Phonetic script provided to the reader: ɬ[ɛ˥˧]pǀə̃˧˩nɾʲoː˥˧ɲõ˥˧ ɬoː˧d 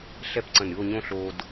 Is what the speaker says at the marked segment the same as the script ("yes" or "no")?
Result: yes